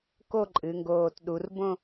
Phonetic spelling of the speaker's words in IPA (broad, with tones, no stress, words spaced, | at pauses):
ko˥˧ǃʼɨ˩˧ ŋɡoː˧˩tɗu˩˧r bõ˥˧